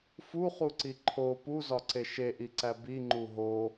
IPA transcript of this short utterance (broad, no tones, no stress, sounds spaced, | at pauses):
f u χ u ǀ i ǃʰ o p u z ɒ ǀ e ʃ e ʔ i ǀ æ b i ŋ͡ǃ u ɦ o